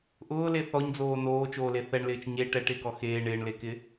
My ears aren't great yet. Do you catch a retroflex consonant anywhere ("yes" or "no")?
yes